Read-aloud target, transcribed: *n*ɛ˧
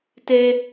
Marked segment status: incorrect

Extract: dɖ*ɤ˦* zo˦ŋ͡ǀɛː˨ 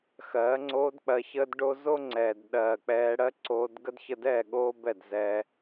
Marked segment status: incorrect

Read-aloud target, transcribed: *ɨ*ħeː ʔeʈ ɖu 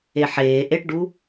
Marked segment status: incorrect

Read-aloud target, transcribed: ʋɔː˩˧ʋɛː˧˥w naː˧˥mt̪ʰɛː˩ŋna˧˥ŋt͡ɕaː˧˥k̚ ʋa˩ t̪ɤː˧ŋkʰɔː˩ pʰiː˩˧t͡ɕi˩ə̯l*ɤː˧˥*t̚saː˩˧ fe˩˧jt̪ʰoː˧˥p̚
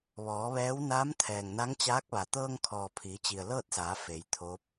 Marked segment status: incorrect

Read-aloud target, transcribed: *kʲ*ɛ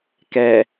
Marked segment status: incorrect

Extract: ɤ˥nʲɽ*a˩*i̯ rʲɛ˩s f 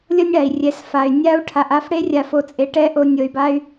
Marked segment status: correct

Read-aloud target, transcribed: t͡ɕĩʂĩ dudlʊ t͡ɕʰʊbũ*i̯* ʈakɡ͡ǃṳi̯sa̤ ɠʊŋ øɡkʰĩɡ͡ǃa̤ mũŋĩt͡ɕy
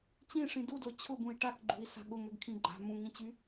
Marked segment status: correct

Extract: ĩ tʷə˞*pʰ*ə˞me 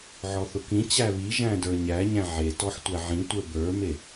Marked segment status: incorrect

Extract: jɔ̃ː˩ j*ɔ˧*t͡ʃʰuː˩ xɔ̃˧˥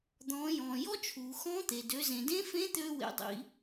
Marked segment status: incorrect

